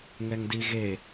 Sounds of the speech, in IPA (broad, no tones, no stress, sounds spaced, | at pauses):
ŋ ɛ ŋ d i ɣ e